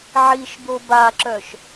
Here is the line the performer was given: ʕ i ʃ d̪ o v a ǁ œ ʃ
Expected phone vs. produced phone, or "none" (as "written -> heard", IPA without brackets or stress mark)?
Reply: v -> b